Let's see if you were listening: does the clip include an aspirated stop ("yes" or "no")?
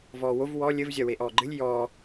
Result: no